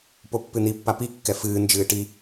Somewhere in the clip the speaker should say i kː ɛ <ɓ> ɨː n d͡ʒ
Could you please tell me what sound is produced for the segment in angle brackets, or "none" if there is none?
f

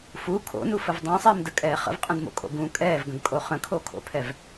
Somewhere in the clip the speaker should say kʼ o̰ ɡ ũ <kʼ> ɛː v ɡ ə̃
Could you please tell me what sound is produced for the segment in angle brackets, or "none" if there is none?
kʼ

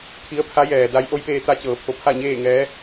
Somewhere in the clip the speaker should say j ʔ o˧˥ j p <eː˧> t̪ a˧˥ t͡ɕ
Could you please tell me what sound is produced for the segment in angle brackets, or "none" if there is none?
eː˧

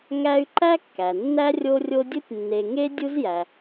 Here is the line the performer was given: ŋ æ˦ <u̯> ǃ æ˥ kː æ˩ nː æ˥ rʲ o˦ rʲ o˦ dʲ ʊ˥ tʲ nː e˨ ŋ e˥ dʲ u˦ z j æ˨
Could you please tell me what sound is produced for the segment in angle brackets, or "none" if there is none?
y̯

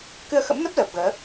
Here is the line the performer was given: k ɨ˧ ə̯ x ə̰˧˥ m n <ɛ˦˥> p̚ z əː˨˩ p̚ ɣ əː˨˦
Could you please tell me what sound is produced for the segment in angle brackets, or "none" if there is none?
ə˦˥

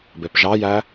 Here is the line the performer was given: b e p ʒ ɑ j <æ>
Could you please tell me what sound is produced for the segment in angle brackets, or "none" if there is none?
æ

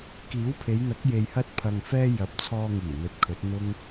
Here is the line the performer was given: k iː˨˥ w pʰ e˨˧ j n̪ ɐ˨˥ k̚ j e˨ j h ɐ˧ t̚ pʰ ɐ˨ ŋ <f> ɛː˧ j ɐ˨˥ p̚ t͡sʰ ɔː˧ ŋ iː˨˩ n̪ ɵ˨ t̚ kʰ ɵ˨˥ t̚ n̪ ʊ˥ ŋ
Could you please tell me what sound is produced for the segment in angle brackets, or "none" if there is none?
f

